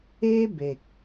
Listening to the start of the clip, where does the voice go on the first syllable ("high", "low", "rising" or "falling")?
high